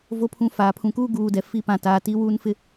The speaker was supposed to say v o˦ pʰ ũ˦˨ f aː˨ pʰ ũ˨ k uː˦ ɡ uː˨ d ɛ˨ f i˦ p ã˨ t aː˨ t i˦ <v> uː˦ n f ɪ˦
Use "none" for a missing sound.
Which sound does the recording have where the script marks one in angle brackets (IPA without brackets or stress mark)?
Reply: w